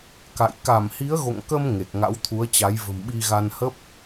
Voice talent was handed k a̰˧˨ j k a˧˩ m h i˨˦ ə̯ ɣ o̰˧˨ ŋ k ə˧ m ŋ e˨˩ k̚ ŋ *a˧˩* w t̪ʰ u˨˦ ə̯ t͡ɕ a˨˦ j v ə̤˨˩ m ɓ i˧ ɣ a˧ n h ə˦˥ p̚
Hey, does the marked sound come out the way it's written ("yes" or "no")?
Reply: no